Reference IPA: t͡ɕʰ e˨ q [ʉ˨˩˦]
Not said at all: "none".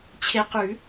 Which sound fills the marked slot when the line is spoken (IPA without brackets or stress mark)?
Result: ʉ˨˩˦